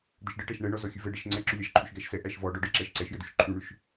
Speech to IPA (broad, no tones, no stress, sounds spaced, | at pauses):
d̪ ə ʃ ɖ ə ʈ æ ʃ ɳ ɛ ɳ ɔ z ɔ xʲ ʉ v ɛ ɖ ɛ ʃ ŋ͡ǀ ɛ ǁ ʉ lʲ æ ʃ ǃʰ ʉ ʃ ɡ æ ʃ s ɛ ʔ æ ʃ v ɔ ɖ ɔ ɖ ə ǁ æ ʃ ǀ ɛ ʃ j ə d ʉ ʃ ǃʰ ʉ ɳ ʉ ʃ